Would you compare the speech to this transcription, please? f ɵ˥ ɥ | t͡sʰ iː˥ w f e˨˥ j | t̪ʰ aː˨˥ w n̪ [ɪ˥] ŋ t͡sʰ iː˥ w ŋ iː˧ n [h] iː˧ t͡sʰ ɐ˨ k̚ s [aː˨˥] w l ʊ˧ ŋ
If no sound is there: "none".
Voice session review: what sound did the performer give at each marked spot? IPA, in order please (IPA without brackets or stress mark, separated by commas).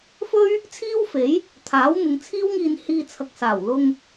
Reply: ɪ˨˧, h, aː˨˩